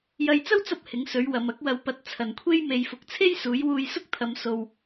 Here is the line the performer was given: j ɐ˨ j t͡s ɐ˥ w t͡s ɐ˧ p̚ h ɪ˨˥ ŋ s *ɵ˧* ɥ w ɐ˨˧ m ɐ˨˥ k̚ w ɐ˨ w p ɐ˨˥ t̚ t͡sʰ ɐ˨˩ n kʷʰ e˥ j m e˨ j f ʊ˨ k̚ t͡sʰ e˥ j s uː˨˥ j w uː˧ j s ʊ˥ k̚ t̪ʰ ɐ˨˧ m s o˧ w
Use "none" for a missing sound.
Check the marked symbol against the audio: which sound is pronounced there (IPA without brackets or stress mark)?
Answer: ɵ˨˥